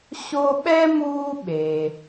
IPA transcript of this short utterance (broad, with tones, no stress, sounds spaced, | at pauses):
ɕ o˦ ɓ ɛ˥ m uː˦ ɓ e˩